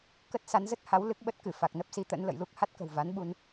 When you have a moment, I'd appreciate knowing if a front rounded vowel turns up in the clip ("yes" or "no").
no